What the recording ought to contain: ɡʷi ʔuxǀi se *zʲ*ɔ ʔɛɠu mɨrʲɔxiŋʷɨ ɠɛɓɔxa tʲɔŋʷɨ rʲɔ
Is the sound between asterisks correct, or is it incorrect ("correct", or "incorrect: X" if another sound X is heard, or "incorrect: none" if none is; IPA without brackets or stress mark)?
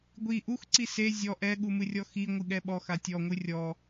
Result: correct